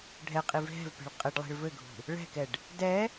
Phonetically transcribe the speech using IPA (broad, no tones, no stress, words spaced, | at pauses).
ɖʱɛqʼiv ɦɛ̤vpe̤ɭ qʼɘɖlˠi̤ɭ vɘɡʱṳ | ɭɛ̤kɛɖ | dɛ